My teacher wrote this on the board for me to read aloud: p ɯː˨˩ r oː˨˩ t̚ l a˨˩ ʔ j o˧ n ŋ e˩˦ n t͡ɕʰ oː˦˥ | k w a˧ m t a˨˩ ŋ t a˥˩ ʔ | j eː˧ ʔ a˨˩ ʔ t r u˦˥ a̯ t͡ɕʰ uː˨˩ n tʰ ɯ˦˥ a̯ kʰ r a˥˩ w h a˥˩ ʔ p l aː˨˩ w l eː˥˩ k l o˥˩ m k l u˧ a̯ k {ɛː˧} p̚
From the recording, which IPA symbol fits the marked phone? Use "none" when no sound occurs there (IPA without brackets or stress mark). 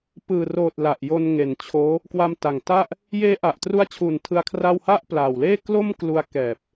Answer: ɛː˨˩